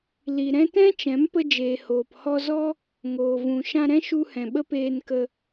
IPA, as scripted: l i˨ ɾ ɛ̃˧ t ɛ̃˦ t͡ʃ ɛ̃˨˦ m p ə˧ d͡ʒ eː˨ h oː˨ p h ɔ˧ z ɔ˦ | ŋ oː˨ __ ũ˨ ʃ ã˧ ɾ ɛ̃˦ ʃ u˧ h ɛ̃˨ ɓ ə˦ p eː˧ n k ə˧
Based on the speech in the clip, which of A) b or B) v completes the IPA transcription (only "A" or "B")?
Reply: B